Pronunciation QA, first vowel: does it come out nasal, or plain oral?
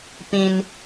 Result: nasal